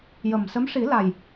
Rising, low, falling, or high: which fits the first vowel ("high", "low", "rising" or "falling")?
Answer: low